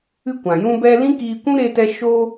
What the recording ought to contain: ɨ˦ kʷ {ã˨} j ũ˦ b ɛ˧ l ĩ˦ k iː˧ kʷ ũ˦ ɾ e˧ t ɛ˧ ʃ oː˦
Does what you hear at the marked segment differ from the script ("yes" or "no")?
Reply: no